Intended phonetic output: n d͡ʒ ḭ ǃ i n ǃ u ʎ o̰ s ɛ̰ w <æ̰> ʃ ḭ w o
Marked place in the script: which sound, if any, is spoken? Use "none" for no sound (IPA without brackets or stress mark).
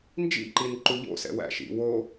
æ̰